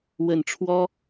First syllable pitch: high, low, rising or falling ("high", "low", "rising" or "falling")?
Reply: low